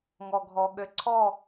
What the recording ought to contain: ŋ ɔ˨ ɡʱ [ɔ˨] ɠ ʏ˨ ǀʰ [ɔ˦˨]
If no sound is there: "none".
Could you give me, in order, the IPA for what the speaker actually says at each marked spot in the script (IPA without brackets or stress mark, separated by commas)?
ɔ˨, ɔ˦˨